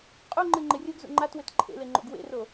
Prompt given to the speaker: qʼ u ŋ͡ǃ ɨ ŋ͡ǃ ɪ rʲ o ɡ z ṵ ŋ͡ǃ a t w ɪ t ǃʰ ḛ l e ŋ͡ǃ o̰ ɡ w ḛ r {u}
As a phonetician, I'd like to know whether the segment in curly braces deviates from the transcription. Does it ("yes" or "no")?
yes